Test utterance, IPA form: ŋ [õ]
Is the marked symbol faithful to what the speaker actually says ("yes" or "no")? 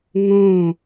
yes